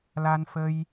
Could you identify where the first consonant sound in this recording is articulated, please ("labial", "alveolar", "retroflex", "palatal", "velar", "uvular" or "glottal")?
alveolar